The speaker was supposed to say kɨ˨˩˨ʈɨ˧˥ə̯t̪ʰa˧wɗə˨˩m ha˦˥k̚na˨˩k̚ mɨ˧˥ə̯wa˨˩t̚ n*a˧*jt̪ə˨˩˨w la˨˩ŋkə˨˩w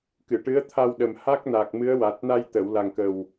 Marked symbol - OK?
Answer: yes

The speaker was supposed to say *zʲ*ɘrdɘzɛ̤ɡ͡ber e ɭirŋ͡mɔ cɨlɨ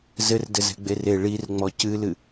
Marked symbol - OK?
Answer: no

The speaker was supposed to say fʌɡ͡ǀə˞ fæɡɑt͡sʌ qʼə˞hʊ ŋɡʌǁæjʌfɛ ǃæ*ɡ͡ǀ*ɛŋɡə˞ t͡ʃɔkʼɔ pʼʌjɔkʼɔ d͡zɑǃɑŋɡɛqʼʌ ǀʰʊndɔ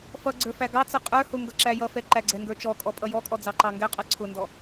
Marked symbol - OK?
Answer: yes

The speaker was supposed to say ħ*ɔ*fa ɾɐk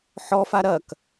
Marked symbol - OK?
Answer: yes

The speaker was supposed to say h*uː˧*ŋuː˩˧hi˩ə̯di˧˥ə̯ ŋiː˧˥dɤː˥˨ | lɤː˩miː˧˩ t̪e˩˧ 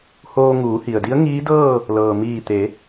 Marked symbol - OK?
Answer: no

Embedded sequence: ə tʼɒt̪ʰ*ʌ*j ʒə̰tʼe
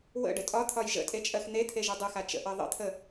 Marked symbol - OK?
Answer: no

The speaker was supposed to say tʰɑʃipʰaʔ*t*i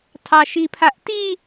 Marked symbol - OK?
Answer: yes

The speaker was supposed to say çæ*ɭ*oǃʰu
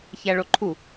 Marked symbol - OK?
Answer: yes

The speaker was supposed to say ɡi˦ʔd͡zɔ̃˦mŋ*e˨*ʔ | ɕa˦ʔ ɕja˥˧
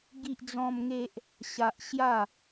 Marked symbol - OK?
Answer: no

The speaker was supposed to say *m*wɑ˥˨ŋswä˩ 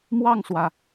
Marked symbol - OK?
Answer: yes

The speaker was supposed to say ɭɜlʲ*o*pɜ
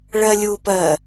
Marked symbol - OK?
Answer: no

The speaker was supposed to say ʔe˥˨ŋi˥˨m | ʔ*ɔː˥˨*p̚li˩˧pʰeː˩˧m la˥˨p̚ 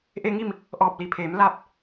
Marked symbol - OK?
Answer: no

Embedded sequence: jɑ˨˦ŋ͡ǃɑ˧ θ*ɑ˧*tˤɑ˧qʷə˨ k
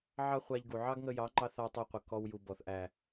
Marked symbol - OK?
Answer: yes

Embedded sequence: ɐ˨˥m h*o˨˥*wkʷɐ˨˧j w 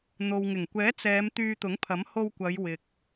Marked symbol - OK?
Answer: no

